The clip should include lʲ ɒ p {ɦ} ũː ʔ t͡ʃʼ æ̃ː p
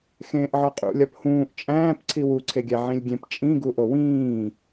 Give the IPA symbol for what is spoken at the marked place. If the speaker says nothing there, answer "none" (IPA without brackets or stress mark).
h